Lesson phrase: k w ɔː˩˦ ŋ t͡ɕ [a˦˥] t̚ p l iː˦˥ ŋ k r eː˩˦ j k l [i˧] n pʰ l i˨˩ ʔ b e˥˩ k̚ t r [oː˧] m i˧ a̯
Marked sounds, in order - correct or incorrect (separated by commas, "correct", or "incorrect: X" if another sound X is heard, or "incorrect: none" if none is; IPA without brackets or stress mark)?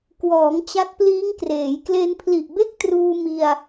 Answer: correct, incorrect: e˧, incorrect: uː˧